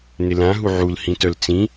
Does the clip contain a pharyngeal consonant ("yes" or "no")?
yes